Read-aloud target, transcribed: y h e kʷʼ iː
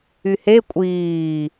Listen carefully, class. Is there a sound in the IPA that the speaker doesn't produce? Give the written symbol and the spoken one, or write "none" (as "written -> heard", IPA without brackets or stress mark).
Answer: none